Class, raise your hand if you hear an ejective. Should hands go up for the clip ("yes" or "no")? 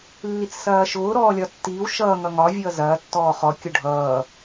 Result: no